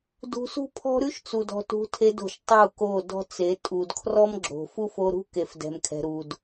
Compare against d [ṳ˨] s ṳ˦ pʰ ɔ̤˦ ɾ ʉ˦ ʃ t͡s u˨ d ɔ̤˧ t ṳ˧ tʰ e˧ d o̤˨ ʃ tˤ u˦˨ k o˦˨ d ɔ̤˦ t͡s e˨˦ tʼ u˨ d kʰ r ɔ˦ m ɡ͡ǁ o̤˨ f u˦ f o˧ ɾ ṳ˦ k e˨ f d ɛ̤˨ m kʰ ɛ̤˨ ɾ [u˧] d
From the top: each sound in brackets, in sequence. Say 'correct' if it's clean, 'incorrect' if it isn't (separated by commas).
incorrect, incorrect